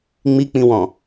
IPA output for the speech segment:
ŋ͡m i k͡p ĩ w ɔ̃

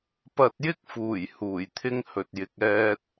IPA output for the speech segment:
p ɐ˧ t̚ j ɪ˥ k̚ f uː˨˩ j h uː˨˩ j t̪ʰ ɪ˥ ŋ h ɵ˨ t̚ j ɪ˨ k̚ ɛː˧ t̚

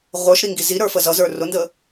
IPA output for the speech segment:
ʁʷ ə˞ ʃ ɾ i ŋ ɡ i z i ɾ ə˞ f ə z ʌ z ə˞ r ʊ n d ə

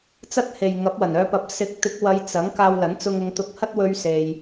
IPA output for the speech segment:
t͡s ɐ˥ t̚ h e˨ j ŋ ɐ˨˥ p̚ w ɐ˨˩ n œː˧ p ɐ˨˥ p̚ s ɪ˨˥ k̚ t̪ ɪ˨˥ k̚ w ɐ˨˧ j t͡s ɐ˨˥ ŋ k aː˧ w l ɐ˨˥ n t͡s ʊ˧ ŋ ʊ˨˧ ŋ t̪ ʊ˧ k̚ h ɐ˥ t̚ w ɵ˧ ɥ s e˧ j

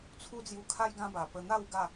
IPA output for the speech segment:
t͡sʰ u˦ d͡z j u˧ kʰ a˦ j ɡ ã˦ b a˨˩ p ə˧ n̪ a˥˧ w ɡ a˥˧

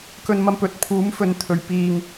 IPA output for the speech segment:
k ɵ˧ n m ɐ˧ m p ɵ˨ t̚ pʰ uː˨˥ m f ɵ˨˧ n t̪ʰ ɵ˨ ɥ p iː˧ ŋ

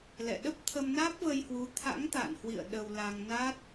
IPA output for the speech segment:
l ɛ̰˧˨ ɗ ə˦˥ p̚ t̪ʰ ə˧ m n aː˦˥ p̚ v ə˧ j h w u˨˦ t̪ʰ a̰˧˥ ŋ t̪ a̰ː˧˨ n h w ḭ˧˨ ə̯ ɗ ə˧ w l a˧ ŋ n a˦˥ t̚

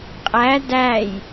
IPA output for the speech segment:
qʼ æ d æ j

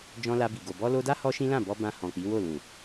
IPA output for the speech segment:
d͡ʒ ɔ̃˧ l a˧ b i˨ ɡ o˨ b ɔ˧ l o˧ d a˦ h ɔ˦ ʃ ĩ˦ l ã˦˨ b ɔ˧ b ã˧ h ɔ̃˨ k͡p i˨˦ w o˦˨ l ũ˨

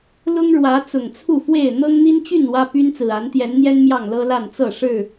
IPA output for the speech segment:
l ʊ˦ ŋ ɻ w ä˨˦ t͡s ʊ˨˩ ŋ t͡sʰ u˥˨ f w e˥˨ ɪ̯ n̪ ɤ˦ ŋ n̪ i˦ n t͡ɕ y˥˨ n w ä˦ p y˦ n t͡s ɹ̩˨˩ a˨˦ n t̪ j ɛ˨˦ n n̪ j ɛ˦ n m j ɑ˥˨ ŋ l ɤ˦ l a˥˨ n t͡s ɤ˥˨ ʂ ɻ̩˥˨

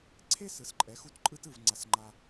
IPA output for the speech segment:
ǀʰ e˥ s ɯ˩˥ s ǃʼ ɛ˩˥ x u˥˩ t ǃʼ ɯ˥ t ɯ˧ v ŋ͡ǀ a˧ s ŋ͡ǃ a˧

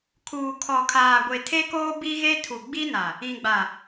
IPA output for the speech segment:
kʰ uː˨ kʰ ɔ˨ kʰ aː˨ ɡʷ e˨ tʰ e˦ k oː˦ b i˦ ɣ e˦ tʰ u˨ ɡ͡b i˦ n a˨ | ĩ˨ ɡ͡b a˨

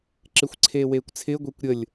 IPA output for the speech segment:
ǁ ɪ xʷ ǀʰ eː w eː kʷ t͡sʰ ɪː ɡʷ e kʷ ɾʲ ə lʲ

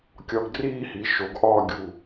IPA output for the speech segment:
kʲ ɒ˧ ɡ d r iː˥˧ h i˩˧ ʃ o˩˧ ɡ ʔ ɒː˥˧ ɡʲ u˧˩

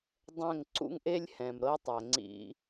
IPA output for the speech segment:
dˤ ɛ̃˦˨ ŋ ǀ ṵ˦ ŋ ʔ e˦ lʲ h ɛ̃˨ m ɾ ɤ˦ tˤ ɛ˨ ŋ͡ǀ ḭ˧

